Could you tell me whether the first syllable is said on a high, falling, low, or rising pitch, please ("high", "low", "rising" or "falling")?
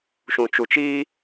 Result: low